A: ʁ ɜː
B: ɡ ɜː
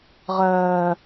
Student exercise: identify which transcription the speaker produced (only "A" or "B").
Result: A